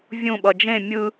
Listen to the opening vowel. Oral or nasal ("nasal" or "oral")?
nasal